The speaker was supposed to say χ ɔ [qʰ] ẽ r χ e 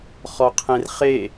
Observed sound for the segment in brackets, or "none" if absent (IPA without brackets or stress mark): qʰ